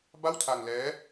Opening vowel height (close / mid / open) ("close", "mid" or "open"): open